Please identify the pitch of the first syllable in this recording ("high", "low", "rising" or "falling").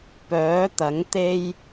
rising